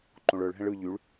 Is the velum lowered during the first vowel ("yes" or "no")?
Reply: yes